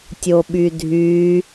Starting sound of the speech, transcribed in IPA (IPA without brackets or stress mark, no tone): tʲ